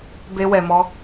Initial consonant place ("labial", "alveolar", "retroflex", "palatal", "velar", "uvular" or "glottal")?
labial